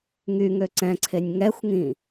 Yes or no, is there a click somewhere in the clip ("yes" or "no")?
yes